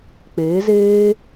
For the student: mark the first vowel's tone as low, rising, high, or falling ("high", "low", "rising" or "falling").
rising